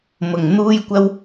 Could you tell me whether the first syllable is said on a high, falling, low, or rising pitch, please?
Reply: low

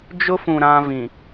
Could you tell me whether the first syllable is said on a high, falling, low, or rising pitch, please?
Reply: high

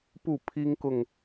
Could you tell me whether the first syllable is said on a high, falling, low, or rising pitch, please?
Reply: falling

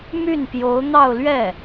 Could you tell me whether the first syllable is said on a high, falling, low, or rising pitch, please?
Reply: falling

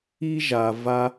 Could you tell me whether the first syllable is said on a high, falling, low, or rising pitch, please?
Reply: high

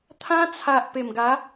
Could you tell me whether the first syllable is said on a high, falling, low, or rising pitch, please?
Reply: high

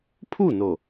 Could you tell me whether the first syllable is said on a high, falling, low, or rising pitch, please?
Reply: falling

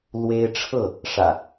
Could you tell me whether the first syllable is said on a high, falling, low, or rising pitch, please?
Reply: high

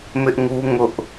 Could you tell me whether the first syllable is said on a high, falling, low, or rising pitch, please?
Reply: high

